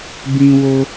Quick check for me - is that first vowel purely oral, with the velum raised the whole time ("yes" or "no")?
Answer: no